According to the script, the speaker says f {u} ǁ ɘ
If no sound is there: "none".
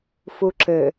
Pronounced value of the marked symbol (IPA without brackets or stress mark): u